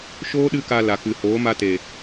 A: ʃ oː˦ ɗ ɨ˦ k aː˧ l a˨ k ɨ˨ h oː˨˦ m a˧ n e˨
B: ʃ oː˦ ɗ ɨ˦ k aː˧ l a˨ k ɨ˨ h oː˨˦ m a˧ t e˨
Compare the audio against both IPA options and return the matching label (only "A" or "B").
B